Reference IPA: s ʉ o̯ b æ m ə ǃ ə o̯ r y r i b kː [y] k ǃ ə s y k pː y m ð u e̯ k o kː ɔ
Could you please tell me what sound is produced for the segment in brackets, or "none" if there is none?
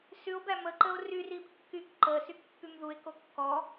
y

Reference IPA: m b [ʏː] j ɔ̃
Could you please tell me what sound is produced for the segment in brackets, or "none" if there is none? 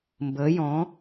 əː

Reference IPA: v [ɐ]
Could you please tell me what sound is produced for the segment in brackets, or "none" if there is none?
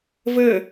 ə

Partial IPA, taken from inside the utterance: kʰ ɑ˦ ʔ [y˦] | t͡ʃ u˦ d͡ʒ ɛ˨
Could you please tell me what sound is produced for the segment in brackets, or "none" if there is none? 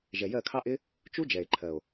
ɪ˦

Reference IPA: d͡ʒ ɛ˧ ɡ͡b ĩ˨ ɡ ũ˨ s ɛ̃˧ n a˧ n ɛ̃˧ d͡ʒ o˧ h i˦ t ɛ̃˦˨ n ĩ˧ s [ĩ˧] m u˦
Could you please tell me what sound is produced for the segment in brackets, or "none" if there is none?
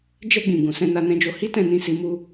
i˧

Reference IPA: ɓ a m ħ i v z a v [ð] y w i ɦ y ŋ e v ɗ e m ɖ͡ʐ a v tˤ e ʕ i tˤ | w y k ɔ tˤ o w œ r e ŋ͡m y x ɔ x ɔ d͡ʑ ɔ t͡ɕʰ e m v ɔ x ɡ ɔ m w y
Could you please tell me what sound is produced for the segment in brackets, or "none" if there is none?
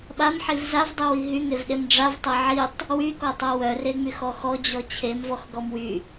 dˤ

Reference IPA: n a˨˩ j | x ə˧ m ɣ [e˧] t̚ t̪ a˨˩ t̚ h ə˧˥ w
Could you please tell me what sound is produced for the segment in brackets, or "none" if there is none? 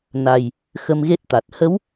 e˦˥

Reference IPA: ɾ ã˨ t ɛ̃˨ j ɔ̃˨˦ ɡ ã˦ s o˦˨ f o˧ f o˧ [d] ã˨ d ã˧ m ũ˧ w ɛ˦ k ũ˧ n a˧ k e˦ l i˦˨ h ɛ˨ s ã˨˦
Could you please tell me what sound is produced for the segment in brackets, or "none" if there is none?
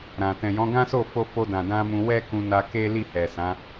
d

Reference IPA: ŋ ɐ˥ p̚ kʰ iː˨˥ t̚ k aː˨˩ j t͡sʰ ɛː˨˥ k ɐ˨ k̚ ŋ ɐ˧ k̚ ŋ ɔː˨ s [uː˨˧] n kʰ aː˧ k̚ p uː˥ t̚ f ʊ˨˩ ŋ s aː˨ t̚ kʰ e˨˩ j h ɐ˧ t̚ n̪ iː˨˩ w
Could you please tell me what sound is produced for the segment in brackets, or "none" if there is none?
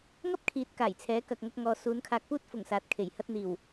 uː˨˧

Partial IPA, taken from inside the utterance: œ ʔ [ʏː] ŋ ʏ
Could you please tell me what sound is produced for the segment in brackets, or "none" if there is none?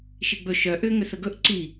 ʏː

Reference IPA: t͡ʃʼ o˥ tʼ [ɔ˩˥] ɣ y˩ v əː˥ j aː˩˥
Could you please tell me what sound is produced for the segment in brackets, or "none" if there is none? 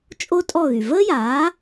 ɔ˥˩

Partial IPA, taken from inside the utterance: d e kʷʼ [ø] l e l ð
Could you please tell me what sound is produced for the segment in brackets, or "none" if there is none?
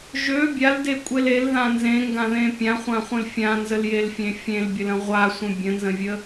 e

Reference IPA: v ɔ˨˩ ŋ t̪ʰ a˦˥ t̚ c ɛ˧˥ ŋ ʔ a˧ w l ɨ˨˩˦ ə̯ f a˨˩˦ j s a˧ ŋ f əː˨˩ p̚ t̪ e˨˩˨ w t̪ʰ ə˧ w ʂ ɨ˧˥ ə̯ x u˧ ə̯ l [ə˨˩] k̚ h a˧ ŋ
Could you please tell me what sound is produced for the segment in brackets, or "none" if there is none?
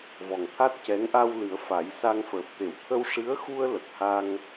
ə˨˩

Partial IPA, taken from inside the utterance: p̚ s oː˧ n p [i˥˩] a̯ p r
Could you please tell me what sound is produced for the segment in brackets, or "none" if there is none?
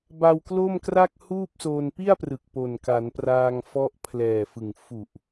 i˥˩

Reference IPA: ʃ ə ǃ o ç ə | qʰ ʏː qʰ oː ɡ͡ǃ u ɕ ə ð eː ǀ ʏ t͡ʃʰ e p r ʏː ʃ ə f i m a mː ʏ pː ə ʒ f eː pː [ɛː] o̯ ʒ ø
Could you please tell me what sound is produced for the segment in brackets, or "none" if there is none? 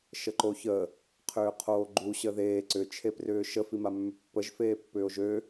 ʏː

